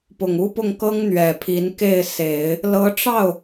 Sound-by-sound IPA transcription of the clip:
p ʊ˨˩ ŋ u˥ p ʊ˥˩ ŋ k ɤ˥ ŋ n̪ ɥ ɛ˨˩ pʰ i˧˥ n k e˥˩ ɪ̯ s e˨˩˦ ɪ̯ | l ɤ˧˥ ʈ͡ʂ ɑ˥˩ ʊ̯

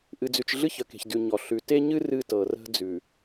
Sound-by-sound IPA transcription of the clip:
ʔ ɨ˨ d͡z ʉ˨ t͡ʃ ɮ ɨ˦ ç ə˨ k e̤˨ ç d ʉ˨ ɲ ɔ˨ ɬ ʉ˨ t e˦ ɲ ɨ˦ r ɨ˦ t ɤ˨ r ə̤˦ d͡z ʉ˨

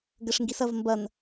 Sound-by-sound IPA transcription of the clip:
ɡ ɘ ʂ ŋ ɡ i s ɐ v m b ɐ n

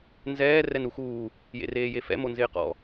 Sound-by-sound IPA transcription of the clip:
n z ɛː r ɛ n u x uː | j ḛ r eː j e f ɛ̰ m o n z ɪː q ɔ̰

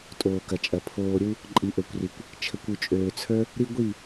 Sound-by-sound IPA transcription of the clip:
tʼ oː˨ k ɐ˨ t͡ʃʼ ɐ˨ pʰ oː˨ ɾʲ u˧ | ǃʼ i˨ ʔ ø˨ kʷ r i˨ kʷ | t͡ʃʰ ə˨ kʷ u˨ t͡ʃʼ øː˨ t͡sʰ ə˞˦ | ɾ i˦ ɡʷ i˦˨

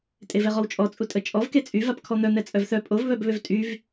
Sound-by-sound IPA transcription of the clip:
tʼ e v ɛ ʁ ɔ w t͡ʃʼ ɔ t͡sʼ u tʼ ə t͡ʃʼ ɔ v k e t͡sʼ y v a p kʰ ɔ n̪ œ n̪ ɛ t͡sʼ œ v θ œ pʼ o v β œ b β ø v tʼ y v

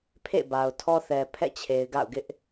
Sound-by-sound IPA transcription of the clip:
pʰ ḛ˦˨ b a˨ ʊ̯ tʰ ɔ˦ θ ɛ˨ pʰ ɛ̰˦˨ t͡ɕʰ e˨ ɪ̯ ɡ a̰˦˨ ʊ̯ ɡ ɪ˦ ʔ

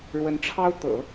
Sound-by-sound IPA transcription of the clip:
ɻ w ə˧˥ n ʈ͡ʂʰ ɑ˥ ʊ̯ t̪ ɤ̰˨˩˦

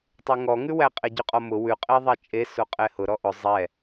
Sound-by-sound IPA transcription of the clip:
tˤ ʉ ŋ ɔ ŋ ʉ w æ qʼ e ɟ ʉ qʼ ɔ m ʊ w ʉ qʼ e ðˤ ɛ t͡ʃʼ e s o qʼ ɛ h ʊ ɾ ɔ ʔ ʊ zˤ ɛ

